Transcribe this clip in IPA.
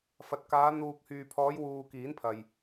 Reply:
fɐ˨t̚kaː˨˧ n̪uː˨k̚hyː˨pʰɔː˨˧j wuː˧kiː˨˥npʰɐ˨j

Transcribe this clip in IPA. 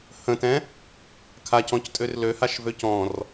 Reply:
hə̃tɛ̃ | kʰacɔ̃ctʼør løhaʃvø cɔ̃r

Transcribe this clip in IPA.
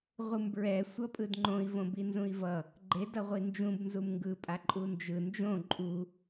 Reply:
ʁʷɯmbɹɛ sʷʌpʼɯdŋ͡ǃõi̯ võbinzũi̯vʌ | ɡ͡ǃe dʌʁʷind͡ʒũb nzumŋɡɯ pʼaǃʼund͡ʒɯ nd͡ʒõ ǃʼu

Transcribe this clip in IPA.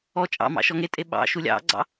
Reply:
ɔ t͡ʃʼɑ̰mɑ̰ ʃɔŋetʼe ɓɑ̰ ʃulʲɑ̰ɡ͡ǀɑ̰

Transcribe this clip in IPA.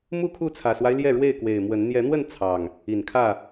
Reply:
mu˥˨kʰu˥˨t͡sʰä˨˩swa˦ɪ̯ ljɛ˥˨ɻwe˥˨ɪ̯kwe˨˩ɪ̯ mwə˨˦n n̪jɛ˨˦n̪wə˥˨n t͡sʰɑ˨˩ŋ | i˨˩nkʰä˥˨

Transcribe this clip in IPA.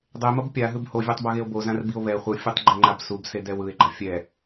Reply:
dˤemʌb pʲaɦɯb hovʲatˤbʌɣeo̯ bozãrbio̯ βɛ χʷɯfʲutˤɡ͡ǃɛŋ͡ǃab subsedɛw ɯe̯ɡ͡ǃa fʲɛ

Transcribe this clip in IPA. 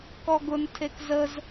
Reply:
kɔɡʊn tʰekzəz

